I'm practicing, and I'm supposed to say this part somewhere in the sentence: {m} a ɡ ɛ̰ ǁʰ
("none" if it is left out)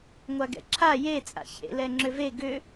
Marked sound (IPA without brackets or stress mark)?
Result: ŋʷ